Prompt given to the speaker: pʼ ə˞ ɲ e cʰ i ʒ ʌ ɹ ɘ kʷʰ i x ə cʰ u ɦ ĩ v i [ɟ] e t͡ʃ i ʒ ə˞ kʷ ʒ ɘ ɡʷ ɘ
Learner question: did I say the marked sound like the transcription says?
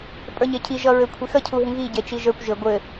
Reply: yes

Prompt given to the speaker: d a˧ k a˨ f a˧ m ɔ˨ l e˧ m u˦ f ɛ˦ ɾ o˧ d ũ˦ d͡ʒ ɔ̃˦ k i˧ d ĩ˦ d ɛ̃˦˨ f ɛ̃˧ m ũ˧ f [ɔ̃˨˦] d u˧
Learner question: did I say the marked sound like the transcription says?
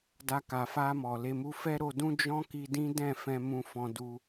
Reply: no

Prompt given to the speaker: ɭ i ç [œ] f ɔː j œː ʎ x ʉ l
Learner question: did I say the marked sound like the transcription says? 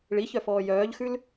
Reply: yes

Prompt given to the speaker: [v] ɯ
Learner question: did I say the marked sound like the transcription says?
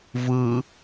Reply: yes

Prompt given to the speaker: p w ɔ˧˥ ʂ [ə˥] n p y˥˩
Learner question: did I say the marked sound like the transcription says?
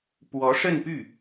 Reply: no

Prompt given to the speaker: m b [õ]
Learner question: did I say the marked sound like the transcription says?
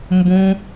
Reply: yes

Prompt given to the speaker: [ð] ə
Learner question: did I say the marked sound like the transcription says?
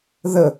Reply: yes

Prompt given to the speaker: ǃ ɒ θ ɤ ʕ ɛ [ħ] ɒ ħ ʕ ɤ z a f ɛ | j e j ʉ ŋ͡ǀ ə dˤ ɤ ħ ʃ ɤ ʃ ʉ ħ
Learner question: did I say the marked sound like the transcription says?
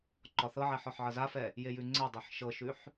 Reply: yes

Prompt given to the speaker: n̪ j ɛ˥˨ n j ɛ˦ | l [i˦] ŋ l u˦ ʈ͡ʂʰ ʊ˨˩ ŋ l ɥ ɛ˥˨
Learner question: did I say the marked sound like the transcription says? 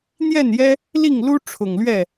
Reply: no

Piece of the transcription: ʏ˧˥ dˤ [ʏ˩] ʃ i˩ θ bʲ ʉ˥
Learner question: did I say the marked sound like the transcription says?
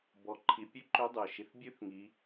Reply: yes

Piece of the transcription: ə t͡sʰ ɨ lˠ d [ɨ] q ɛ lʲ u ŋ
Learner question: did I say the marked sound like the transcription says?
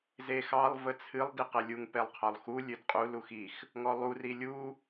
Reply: no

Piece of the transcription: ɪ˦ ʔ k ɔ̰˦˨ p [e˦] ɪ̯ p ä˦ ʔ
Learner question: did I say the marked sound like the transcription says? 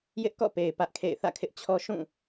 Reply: no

